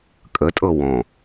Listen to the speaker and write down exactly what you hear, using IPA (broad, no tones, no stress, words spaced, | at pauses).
kʼətʼɤ wɔ̃